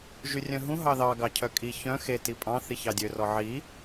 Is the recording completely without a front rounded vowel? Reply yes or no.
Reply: no